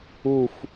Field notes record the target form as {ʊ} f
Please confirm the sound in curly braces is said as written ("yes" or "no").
no